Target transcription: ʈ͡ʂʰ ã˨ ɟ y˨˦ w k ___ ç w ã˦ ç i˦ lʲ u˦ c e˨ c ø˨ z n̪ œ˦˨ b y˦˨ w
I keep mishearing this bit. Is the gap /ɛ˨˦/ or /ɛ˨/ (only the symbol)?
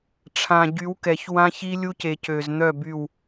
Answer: ɛ˨